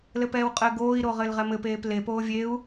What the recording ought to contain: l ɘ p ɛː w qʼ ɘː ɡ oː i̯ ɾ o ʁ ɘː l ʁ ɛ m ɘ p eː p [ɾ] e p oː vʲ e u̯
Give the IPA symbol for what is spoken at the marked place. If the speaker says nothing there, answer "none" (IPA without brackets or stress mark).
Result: l